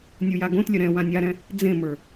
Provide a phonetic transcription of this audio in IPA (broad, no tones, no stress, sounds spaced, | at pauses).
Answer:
nʲ u j a ɡ õ t lʲ ə ɾ ɛ̃ w ã nʲ a ɾ ɛ̃ | d͡z ẽ m ə˞